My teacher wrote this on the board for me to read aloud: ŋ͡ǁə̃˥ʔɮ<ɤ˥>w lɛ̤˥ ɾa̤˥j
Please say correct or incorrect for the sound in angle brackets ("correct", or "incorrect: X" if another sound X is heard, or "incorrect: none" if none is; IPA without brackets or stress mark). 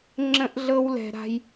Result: correct